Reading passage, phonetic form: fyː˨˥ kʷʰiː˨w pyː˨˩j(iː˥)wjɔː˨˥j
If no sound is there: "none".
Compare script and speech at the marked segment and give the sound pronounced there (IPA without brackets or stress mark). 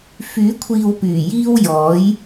iː˥